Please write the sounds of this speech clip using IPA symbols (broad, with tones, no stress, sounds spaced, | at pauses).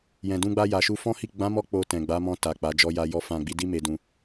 j ɛ̃˨ d ũ˧ ɡ͡b a˧ j a˨ ʃ u˧ f ɔ̃˦ h i˦˨ ɡ͡b ã˨˦ m ɔ˧ k͡p o˧ t ɛ̃˨ ɡ͡b a˨˦ m ɔ̃˧ t a˨ k͡p a˨˦ d͡ʒ ɔ˧ j a˧ j ɔ˧ f ã˨ ɡ͡b i˨˦ d i˦ m e˧ d ũ˧